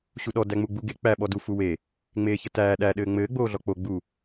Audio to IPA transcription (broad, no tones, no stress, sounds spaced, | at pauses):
ɕ u ɗ ɔ d æ ŋ͡m u ɡ͡b u ɡ e k͡p æ ɓ ɔ d u f u w e | ŋ͡m eː ç ə t æː ɗ æ ɗ ɘː ŋ͡m ɘː ɡ͡b oː ɮ ɔ k͡p o ɡ͡b u